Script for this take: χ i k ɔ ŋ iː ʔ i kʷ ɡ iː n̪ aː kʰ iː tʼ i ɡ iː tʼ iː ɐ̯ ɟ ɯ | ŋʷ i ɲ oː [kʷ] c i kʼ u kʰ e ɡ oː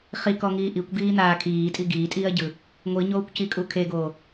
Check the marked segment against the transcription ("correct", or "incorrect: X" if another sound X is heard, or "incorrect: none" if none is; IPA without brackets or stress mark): correct